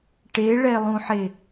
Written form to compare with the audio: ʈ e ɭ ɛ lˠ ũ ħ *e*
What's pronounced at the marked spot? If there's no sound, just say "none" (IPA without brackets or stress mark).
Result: e